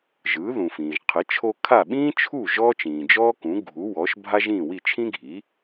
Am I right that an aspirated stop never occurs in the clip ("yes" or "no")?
no